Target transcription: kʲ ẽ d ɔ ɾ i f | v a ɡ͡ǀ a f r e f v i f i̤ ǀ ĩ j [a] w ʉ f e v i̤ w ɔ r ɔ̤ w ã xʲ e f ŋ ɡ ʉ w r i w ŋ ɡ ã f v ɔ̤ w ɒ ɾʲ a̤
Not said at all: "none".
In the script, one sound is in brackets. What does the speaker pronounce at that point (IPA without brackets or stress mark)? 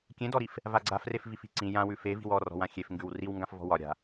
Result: ã